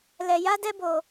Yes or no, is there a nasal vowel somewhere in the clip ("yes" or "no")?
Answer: no